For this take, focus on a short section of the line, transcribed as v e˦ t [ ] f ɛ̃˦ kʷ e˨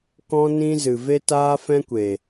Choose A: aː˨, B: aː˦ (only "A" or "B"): B